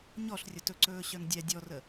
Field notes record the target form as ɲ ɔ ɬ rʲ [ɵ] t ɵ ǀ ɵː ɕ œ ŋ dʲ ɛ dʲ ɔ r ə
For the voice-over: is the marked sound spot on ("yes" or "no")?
no